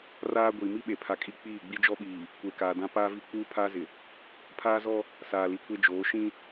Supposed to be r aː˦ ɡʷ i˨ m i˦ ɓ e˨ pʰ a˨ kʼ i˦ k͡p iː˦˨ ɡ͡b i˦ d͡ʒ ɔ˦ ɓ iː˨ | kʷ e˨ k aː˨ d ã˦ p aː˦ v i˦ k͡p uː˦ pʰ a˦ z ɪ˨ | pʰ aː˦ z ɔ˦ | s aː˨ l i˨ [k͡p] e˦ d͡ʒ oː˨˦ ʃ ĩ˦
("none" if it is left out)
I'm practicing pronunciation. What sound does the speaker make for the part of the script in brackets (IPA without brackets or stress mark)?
kʷ